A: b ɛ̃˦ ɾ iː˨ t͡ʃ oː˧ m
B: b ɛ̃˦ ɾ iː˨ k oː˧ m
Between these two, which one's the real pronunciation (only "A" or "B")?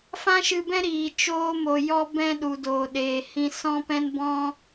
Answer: A